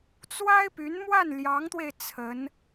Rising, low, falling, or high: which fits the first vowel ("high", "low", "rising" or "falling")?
high